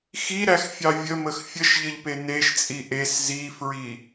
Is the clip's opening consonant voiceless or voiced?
voiceless